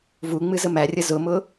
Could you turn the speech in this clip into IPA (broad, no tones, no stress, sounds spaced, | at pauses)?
v u ŋ͡m ɨ z ə m æ rʲ ə z ʊ m ʊ